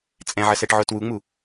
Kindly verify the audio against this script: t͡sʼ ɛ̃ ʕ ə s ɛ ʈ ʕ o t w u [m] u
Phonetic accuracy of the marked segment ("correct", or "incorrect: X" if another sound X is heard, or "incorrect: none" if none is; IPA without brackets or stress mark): incorrect: ŋ͡m